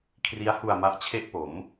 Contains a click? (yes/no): no